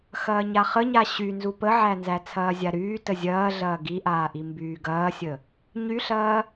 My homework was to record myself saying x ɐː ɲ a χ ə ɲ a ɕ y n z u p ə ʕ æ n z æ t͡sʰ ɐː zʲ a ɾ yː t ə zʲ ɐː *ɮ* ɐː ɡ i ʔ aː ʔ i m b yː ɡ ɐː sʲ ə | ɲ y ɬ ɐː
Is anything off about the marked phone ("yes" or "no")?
no